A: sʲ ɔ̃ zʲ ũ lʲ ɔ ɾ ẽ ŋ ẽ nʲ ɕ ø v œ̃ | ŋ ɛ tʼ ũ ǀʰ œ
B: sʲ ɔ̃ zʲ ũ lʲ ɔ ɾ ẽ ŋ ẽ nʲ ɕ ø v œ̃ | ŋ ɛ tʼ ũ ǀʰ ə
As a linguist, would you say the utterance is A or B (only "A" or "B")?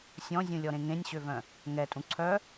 A